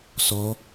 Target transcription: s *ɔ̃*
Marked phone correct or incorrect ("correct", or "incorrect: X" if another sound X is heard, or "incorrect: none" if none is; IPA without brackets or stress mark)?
incorrect: ɔ